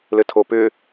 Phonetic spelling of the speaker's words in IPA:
l ɘ tʰ o p ʏ

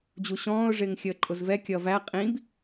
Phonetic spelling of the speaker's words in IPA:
d͡ʑ u ɕ ɔ̃ː ʊ̯ ʐ ɪː ŋ xʲ əː ǃʼ ʊ z v ɛ kʲ ʌ v æ qʼ ĩ b

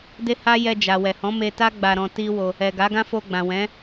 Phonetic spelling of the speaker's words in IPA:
d e˦ h a˦ j ɛ˧ d͡ʒ a˨ w ɛ˨ h ɔ̃˨˦ m e˧ t a˦ ɡ͡b a˧ ɾ ɔ̃˧ t i˦ w o˧ | ɛ˨ ɡ a˨˦ ɡ ã˦ f o˧ ɡ͡b ã˨ w ɛ̃˨˦

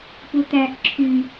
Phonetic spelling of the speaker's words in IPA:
p u t̪ æ ʔ ǁʰ y

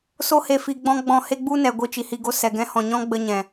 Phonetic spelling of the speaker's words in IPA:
s o˧ h e˨ f i˨ ɡ͡b ɔ̃˧ ɡ͡b ɔ̃˧ h e˦ ɡ͡b u˦ n ɛ˨ ɡʷ i˧ t͡ʃ i˨ h i˧ ɡ o˦ s ɛ˨ ɡ ɛ̃˧ h ɔ̃˨ ɲ ɔ̃˦ ɡ͡b ə˧ ɲ ɛ̃˨

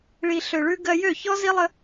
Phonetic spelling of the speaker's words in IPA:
ɭ i˨ ɬ ø˨ ɭ ʉ˧ ɡ ɜ˧ j ø˦˨ ç ɔ˦ z i˦ lˠ ə˦

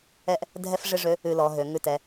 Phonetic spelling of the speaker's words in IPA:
ɛ˥ ʔ | dʱ ɛ˥ f ʐ ɪ˥ ʐ ø˧˥ | ʉ˧ l ɔ˩˧ ɦ ø˩˧ ŋ ʉ˧ t ɛ˩˧

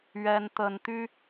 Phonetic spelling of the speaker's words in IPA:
ɥ ɛ˦ n t̪ ə˦ n t̪ y˦

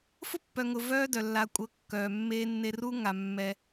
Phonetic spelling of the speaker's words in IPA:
f ʊ˦ pː œ˨ ŋ ʊ˨ v œː˦ d œ˨ lː a˨ kʷʼ ɤ˨˦ kː œː˨ mː eː˦ nː e˦ r u˦ ŋ a˨ mː ɛ˦

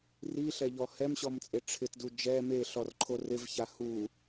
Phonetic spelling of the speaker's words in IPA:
r i ɬ ɛ ʎ ɔ h ɛ m ɕ ɔ m t͡sʼ e ʈ͡ʂʰ ɪ t d u d͡ʒ ɛ m e ɬ ɔ r ǃʰ o r ɪ v ç a h u

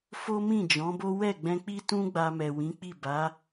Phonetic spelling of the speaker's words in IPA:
f o˦ m ĩ˦˨ d͡ʒ ɔ̃˨˦ b o˦ w ɛ˦˨ ɡ͡b ɛ̃˧ k͡p i˦ t ũ˦ ɡ͡b a˧ m ɛ˨ w ĩ˨˦ k͡p i˦˨ b a˨˦

